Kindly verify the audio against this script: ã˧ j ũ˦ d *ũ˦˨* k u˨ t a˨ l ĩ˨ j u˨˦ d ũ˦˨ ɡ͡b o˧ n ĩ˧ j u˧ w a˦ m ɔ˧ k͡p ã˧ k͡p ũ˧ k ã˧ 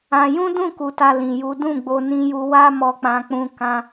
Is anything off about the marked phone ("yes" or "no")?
no